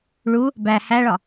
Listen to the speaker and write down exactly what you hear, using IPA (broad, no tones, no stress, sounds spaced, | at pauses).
ɭ u | b æ h æ ɭ ɒ